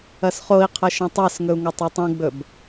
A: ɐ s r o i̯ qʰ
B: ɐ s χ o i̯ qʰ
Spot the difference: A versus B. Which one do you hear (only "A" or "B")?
B